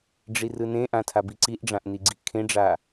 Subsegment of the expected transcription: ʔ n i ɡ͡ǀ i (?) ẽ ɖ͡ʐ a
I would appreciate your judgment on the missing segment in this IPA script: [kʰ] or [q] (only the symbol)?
kʰ